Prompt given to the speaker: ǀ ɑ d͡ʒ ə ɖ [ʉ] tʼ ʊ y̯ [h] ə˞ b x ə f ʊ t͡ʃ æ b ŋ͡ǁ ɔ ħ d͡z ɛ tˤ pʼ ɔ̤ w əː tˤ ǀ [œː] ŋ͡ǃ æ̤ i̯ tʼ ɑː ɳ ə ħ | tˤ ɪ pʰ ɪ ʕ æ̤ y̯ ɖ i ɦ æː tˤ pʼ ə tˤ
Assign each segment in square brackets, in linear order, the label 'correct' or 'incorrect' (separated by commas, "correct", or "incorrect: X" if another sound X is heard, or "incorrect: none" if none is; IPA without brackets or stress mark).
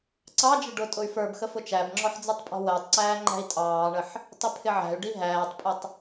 incorrect: ʊ, incorrect: f, incorrect: æː